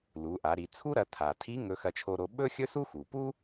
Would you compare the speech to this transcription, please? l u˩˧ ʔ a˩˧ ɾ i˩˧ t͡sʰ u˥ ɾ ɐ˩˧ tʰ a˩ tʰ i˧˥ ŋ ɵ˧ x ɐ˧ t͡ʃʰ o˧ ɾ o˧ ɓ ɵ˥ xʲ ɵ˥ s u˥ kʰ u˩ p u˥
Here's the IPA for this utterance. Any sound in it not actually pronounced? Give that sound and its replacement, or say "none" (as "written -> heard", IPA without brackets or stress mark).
kʰ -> x